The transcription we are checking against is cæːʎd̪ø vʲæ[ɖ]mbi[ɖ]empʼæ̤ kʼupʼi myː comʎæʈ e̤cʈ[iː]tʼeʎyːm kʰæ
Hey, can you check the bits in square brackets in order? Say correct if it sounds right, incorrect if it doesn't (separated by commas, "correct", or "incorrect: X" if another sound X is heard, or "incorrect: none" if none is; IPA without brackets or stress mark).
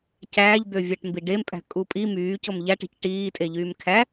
incorrect: ʈ, correct, correct